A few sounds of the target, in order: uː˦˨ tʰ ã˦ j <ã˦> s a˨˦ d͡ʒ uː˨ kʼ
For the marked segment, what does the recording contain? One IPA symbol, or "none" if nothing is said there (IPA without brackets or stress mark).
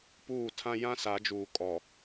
ã˦